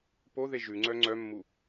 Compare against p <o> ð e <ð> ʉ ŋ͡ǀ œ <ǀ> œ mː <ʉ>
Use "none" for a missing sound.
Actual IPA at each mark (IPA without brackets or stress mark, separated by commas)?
o, ʒ, ŋ͡ǀ, u